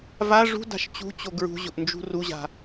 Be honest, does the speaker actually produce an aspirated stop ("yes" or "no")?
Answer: no